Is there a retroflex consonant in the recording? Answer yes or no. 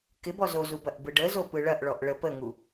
yes